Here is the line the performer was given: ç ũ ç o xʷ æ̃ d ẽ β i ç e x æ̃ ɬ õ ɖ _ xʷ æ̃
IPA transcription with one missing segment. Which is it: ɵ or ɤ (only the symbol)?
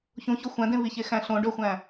ɵ